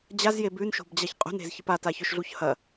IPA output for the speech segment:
d͡ʑ a z j e b ʉ n ʃ o̤ b d͡ʑ a ç qʼ ṳ n e̤ z ç ɨ p a t a ç ɵ ʃ ɮ u ç h ɐ

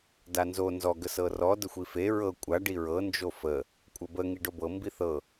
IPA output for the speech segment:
d a n z o n z ɔ ɡ ə s ɤ r ɔ d ə xʷ i f e ɹ ɤ kʷʼ a ɖ i ɹ ɤ n d͡ʒ o f ə | kʷʼ ə b ə ŋ i ɖ o b ɤ m b i θ ɤ

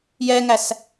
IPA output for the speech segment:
j ɛ ŋ æ s

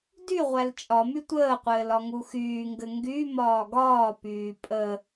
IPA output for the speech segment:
d y ʁʷ æ l t͡ʃʼ ɒ m y tʷ əː qʷ ɘː l ɒ ŋ u x yː ŋ ɡ ɘ ŋ ɡ y m ɒː ɡ ɒː p yː pʼ ə

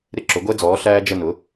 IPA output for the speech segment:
ɾ ɪ˦ ǁ ʊ˩˥ ɡʷ ɛ˦ d͡z ɔː˩˥ ɬ æː˦ d͡ʒ ə˦˨ n ʊ˩˥

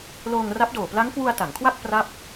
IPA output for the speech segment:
l oː˧ ŋ r a˦˥ p̚ d oː˨˩ p l a˦˥ ŋ k w u˧ a̯ t a˩˦ ŋ kʰ w a˥˩ k̚ p r a˥˩ p̚

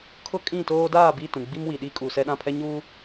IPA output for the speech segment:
kʰ ʊ˦ kʼ ĩ˦˨ t oː˦ d aː˦˨ b i˦˨ t ũ˨ ɡ͡b i˦ m w i˨ ɗ i˦ kʼ uː˨ s ɛ˦ ɗ ã˦˨ pʰ ɛ˦ ɲ uː˦

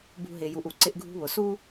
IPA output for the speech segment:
b ṳ˦ ɦ ɪ˧ j u˧ ʔ u˨ ǀ ɪ˧ ʔ ɡʱ ṳ˧ β ʊ˨ s u˦

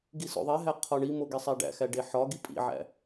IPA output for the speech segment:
ɡ i s o̰ ðˤ e ɦ æ qʰ ɒ ɳ i m o ɡ e sˤ æ ɖ æ̰ x æ ɖ e ħ ɒ ɡ i pʼ ḭ ʕ æ̰

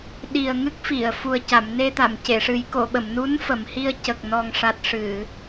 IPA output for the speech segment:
ɗ i˨˩ ə̯ ŋ ɨ˦˥ k̚ f i˨˩˨ ə̯ f u˨˩ ə̯ c a˨˩˨ m n e˧ t̪ a˨˩˨ m c e˨˩˨ ʂ ɨ˨˩˦ j k o˨˩˨ ɓ ə˨˩˨ m n u˧˥ n f ə˨˩˨ m h i˧ ə̯ c ə˨˩ k̚ n ɔ˨˩ ŋ ʂ a˨˩ t̚ ʂ ɨ˨˩˨

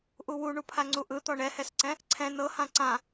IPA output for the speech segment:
ʔ u w u ɳ u pʰ a ŋ͡ǀ u ʔ ɯ t̪ ɔ ɳ ɛ h ɛ s ǀ ɛ̃ | ǀʰ ɛ̃ n ɤ h ã ǀ ã

